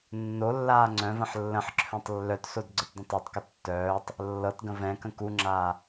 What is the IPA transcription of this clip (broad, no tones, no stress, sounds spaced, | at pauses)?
nː o lː aː ŋ͡ǀ œ̃ v ə̃ ħ lː ə̃ ħ ǁʰ œ̃ tˤ lː œ t s o d ɡ͡ǀ ə t dˤ ə̃ tˤ e tˤ k ə tː œː tˤ | lː ɤ t ɡ ə̃ v ɛ̃ k ə̃ k u ŋ͡ǁ aː